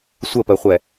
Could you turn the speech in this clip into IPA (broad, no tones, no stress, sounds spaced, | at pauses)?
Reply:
sʷ ə p ɜ χʷ ɛ